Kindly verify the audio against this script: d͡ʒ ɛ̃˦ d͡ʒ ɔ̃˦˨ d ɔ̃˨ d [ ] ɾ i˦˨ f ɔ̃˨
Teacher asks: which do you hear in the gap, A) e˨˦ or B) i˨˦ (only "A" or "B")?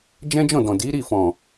B